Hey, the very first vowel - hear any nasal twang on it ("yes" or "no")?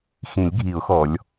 yes